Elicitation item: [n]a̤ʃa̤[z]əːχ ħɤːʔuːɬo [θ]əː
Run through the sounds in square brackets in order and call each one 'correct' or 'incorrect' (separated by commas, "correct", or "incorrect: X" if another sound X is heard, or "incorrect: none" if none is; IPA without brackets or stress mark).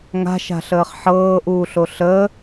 incorrect: ŋ, incorrect: ɬ, incorrect: ɬ